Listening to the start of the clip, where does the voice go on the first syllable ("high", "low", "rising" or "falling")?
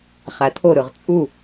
low